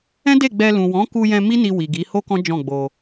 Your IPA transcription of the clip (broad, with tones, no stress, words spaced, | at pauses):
ɛ̃˦de˦˨ɡ͡bɛ˧ lũ˨wɔ̃˨˦ku˧jɛ̃˧ mi˦ni˧wi˨ɡi˨˦ ho˦kɔ̃˦d͡ʒɔ̃˦˨ɡ͡bo˧